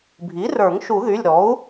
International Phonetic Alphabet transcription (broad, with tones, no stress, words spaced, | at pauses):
bʱi˩˥rə˞˨˩˦ŋ ʃu˨˩˦ðy˩˧˩lʲɾɔ˩˥u̯